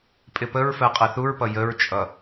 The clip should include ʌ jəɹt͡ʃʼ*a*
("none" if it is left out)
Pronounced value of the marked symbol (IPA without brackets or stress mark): ʌ